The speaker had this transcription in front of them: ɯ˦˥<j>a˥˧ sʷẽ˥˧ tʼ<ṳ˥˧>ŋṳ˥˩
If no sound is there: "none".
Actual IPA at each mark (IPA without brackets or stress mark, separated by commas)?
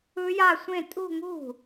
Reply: j, ṳ˥˧